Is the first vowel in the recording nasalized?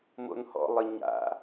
no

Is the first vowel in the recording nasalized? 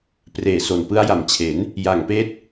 no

